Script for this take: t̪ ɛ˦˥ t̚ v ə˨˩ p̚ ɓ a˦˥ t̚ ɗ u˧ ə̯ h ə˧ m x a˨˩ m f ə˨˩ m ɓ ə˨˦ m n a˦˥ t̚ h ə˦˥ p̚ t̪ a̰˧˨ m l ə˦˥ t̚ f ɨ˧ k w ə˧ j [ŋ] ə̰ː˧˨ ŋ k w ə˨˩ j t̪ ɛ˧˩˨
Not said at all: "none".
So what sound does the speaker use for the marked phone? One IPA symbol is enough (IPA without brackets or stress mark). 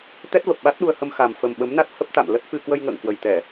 ŋ